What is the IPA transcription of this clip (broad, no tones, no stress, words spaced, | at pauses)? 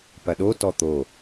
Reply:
pɐɗo tɔt̪o